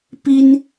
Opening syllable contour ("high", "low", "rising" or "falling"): high